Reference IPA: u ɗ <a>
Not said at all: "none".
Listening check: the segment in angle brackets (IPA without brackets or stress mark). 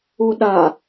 a